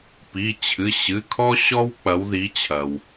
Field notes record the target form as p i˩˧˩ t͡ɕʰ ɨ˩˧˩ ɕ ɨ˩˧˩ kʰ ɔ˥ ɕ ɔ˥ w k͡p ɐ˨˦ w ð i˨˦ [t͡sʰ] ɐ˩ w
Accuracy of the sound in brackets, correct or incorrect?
incorrect